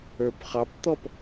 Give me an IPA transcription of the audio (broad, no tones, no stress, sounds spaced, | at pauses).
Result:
ə˞ p χ ɑ p t̪ ɔ p